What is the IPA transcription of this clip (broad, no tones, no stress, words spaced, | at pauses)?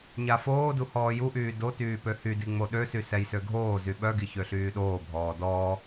ɲafoːdu hɔːjuʔyː dotyː pøhydi ŋ͡moɗøsy sɛjsøɡʱoːzy ɓœɡi çøɬyːɗoːbʱɔː dɔː